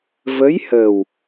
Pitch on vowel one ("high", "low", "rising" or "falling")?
rising